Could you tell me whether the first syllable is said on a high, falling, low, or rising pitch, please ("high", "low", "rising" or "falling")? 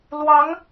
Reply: rising